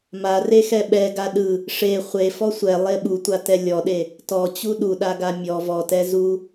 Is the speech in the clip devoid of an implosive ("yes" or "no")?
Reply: no